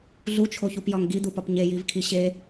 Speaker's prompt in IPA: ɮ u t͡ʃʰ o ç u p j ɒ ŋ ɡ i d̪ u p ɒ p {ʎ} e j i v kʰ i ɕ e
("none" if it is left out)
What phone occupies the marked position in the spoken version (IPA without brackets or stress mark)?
ɲ